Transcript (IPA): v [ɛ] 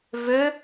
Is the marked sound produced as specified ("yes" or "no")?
no